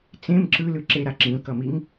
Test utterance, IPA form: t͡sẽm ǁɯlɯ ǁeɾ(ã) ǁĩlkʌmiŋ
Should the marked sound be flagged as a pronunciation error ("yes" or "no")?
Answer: yes